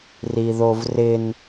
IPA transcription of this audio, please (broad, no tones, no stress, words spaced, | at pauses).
riðovrɪn